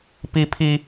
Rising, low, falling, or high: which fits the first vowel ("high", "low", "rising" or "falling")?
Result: high